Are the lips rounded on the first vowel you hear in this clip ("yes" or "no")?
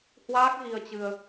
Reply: no